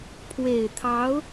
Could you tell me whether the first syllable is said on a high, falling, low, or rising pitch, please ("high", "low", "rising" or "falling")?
low